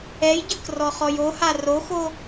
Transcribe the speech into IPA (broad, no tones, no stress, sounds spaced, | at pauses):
ɛ j ɟ ɯ k r ɔ χ ɔ j o h a r o x o